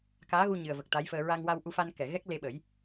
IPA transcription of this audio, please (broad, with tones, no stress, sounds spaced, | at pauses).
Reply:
k aː˧˥ ɣ u˧ ɲ ɨ˨˩ ə̯ v ə˨˩ k̚ t̪ a˧˥ j f əː˧ ɹ a˧ ŋ w a˧ w ʔ u˧ f a˧ n k ɛ˨˩˨ ɣ ɛ˦˥ k̚ l e˧ ɓ ə˨˩˦ j